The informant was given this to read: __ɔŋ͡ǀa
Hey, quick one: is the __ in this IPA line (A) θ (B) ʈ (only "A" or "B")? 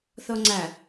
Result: A